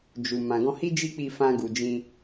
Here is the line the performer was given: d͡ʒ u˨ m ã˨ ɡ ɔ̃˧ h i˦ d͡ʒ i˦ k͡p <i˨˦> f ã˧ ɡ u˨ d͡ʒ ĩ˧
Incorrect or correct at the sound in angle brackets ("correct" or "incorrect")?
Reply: incorrect